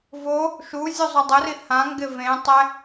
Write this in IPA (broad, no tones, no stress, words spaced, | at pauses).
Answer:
vo | ʃu zʲuzˤodˤʊri hãŋɡɪ vẽtˤɛ